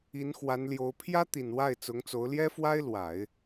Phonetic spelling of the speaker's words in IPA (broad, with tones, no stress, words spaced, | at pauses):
i˧˥nxwa˧˥nljo˧˥ʊ̯ pʰjä˥t̪i˨˩n wa˥˩ɪ̯t͡sʊ˧˥ŋt͡so˧˥ʊ̯ ljɛ˥fwa˥ɪ̯lwa˨˩˦ɪ̯